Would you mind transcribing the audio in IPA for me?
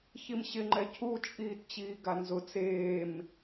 ç i m ɕ ɪ ŋ͡ǃ ɛ cʰ u t͡ʃʼ iː t t͡ɕ iː ɡ a n z ʊ t͡s eː m

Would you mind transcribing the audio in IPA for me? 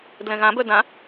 d l ɛ̃ ɣ ã b œ d ã

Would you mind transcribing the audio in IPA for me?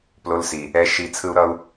p l o˧ l s i˨ | ɛ˧ ʃ i˧ t͡sʰ ɯ˦ u̯ ɾ ʌ˦ u̯

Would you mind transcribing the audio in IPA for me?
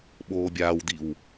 ɓ oː bʲ aː w d̪ i w

